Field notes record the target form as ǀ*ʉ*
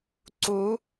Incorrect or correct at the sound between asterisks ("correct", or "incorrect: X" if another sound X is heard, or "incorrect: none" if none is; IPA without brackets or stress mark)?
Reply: incorrect: u